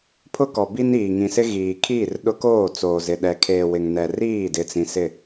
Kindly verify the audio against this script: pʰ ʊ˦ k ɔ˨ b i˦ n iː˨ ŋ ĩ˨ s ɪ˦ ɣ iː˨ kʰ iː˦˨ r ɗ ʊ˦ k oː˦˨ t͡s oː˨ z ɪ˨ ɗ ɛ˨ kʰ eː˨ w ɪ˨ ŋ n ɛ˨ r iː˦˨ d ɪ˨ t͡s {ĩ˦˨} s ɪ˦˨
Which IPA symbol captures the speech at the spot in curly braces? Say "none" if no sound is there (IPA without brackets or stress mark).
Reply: ĩ˨